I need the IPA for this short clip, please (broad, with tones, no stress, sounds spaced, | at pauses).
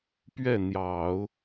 p ɥ ɛ˥˩ n̪ j ɑ˨˩˦ ʊ̯